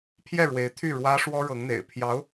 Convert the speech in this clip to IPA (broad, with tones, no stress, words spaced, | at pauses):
pʰjɛ˥˩ɻwe˧˥ɪ̯t̪ʰy˥˩ ɻwä˥ ʂwɔ˥ɻɤ˧˥ŋn̪ḛ˨˩ɪ̯pʰjɑ˧˥ʊ̯